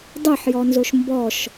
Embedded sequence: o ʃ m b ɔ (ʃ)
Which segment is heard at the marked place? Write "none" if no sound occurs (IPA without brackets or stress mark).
ʃ